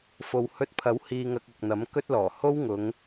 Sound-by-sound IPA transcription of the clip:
f o˨ w h ɵ˧ t̚ pʰ ɐ˨˥ w h iː˧ ŋ ɐ˧ k̚ ɐ˨ k̚ n̪ ɐ˨˥ m k ɵ˥ t̚ l ɔː˨˩ h o˥ w ŋ ʊ˨˧ ŋ

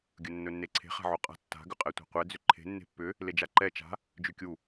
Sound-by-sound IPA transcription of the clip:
ɡʲ ɵ nː ɵ nː e ǀʰ e̤ χ a̤ ʕ o qʼ a̤ tː a̤ ɡ ʏ qʼ ɛ tʷ a̤ qʷ ɛ d͡z ʏ ǃʰ e̤ nː e̤ pː ʏ | l e d͡ʒ a ǃ ɛ t͡ʃ a̤ | d͡ʒ ʉ kʲ u

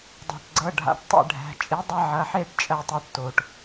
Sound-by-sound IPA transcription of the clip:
dˤ a̤˩ ʈ ɡ͡ǀ ɤ˩˧˩ ɖʱ a̰˩˧ ʈ tˤ ḛ˥˩ ɖʱ æ̤˩˧˩ t͡ʃʼ i˩˥ dˤ ɐ˦ ʕ ɐ˩˧˩ ħ e˥˩ ʈ t͡ʃʼ ɜ˥˩ tˤ ɛ˦ ʈ t o˩ ʈ

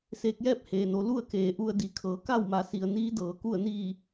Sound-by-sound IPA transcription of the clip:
s eː˧ k̚ j ɛː˥˨ p̚ h eː˩ n o˩˧ l u˥˨ ə̯ k eː˩˧ ʔ u˧ ə̯ d i˩˧ kʰ ɤː˩˧ k a˥˨ w m a˩˧ s i˩ ə̯ n iː˧˥ d ɤː˩ k u˧˩ ə̯ n iː˧˩

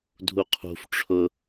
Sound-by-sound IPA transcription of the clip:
dʱ u qʰ ṳ f ʈ͡ʂʰ ʊ

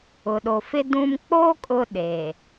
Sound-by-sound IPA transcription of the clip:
ʊ˨ ɗ o˨ f ɪ˦ d ũ˦ m k͡p o˦ kʼ ʊ˦ ɗ eː˨

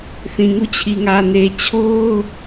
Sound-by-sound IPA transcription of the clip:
θ ĩ˨ ŋ u˦˨ t͡ɕʰ i˨ ŋ ä˨ n e˨ t͡ɕʰ o˦ ʊ̯

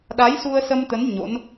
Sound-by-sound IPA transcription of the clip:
ɗ a˨˦ j s u˧ ə̯ s ə˧ m t̪ ə˨˦ n ɲ o̰˧˥ n

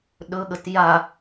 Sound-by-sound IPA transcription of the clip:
ɗ ɵ ɠ ə t j a

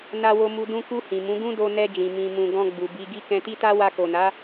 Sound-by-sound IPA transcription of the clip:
n a˧ w o˧ m u˧ d ũ˧ k u˧ h ĩ˨ m ũ˨˦ ɡ ũ˦ d o˧ n ɛ˧ d͡ʒ ĩ˨ m ĩ˨ m ũ˨ ɡ ɔ̃˧ ɡ͡b u˨ b i˧ ɡ i˦ k ɛ̃˧ t i˦ t a˦ w a˧ k o˨ n a˨˦

